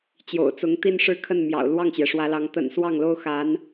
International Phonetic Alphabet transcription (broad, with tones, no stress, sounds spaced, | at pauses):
t͡ɕ j o̰˨˩ ʊ̯ t͡s ʊ˧˥ ŋ t̪ i˥˧ n ʂ ɻ̩˥˧ kʰ ə˥˩ n m j ɑ̰˨˩ ʊ̯ l w ɑ˥˩ ŋ t͡ɕ j ɛ˩ ʂ w ä˧˥ l ɑ˧˥ ŋ t̪ ə̰˨˩ n s w ɑ˥˩ ŋ l o˥ ʊ̯ x a˧˥ n